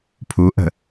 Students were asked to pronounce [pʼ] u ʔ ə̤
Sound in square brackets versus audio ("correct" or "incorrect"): incorrect